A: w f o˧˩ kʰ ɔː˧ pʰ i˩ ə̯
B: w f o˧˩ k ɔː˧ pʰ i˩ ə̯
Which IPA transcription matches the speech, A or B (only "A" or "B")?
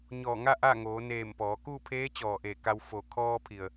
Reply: A